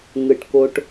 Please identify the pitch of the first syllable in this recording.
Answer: low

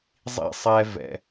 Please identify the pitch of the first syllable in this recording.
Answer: high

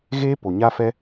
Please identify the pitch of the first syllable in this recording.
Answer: high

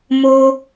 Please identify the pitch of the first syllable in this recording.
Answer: high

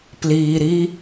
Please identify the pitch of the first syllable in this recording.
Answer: low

